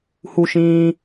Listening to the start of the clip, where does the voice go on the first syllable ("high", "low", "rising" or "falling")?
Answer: high